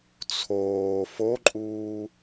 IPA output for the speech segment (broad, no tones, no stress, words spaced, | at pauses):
t͡sʰoː foǃʼuː